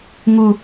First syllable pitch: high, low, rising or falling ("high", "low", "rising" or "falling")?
high